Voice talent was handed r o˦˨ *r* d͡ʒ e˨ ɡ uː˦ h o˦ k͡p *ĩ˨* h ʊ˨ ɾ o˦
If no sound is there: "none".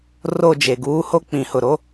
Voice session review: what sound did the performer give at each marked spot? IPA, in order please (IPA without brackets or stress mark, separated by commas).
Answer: none, ĩ˨